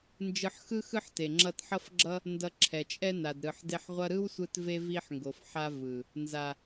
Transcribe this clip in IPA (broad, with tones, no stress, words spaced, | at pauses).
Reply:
nd͡ʒɯ˧ħxɯ˦ xɯ˦ħte˨ ŋ͡ǁʌ˧tħʌ˦fɡ͡ǁʌ˦ | ndʌ˧ǁʰɛ˨t͡ʃʼɛ˦ na˨dɾɯ˨ħde˧ħ ʁʷʌ˧ɾɯ˦wsʷɯ˧t ve˦vi˦ħŋɡo˨f ħa˧ vɯ˨ | nza˨